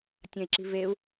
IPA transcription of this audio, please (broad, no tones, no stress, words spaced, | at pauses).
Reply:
tʲɐ̃i̯ǁi̤ veu̯